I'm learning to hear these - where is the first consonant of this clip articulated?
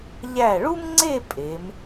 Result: palate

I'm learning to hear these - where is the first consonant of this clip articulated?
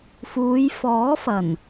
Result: lips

